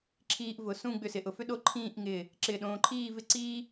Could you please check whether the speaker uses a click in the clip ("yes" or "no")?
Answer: yes